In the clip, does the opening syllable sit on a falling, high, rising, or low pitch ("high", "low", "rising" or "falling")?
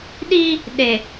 high